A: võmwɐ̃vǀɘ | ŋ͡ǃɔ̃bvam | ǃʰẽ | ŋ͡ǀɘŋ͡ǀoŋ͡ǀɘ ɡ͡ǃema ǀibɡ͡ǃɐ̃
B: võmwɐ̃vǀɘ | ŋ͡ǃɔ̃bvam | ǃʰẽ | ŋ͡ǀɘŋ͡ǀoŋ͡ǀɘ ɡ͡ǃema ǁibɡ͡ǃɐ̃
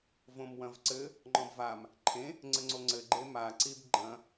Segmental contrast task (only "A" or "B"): A